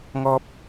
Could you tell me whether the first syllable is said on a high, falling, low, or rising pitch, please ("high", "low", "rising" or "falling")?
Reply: high